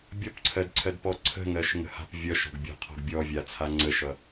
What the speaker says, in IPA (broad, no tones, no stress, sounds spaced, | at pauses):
bʲ ɔ p ǀʰ ɜ d ǀʰ ɜ d p ɔ ǀʰ ə̤ ŋ ɜ ʃ ŋ ə̤ h a̤ p vʲ ʌ ʃ ɔ̤ ɡ bʲ ɔ̤ qʰ ɔ̤ ɡ bʲ ɔ vʲ a t͡sʰ a ŋ͡ǀ ə ʃ ʌ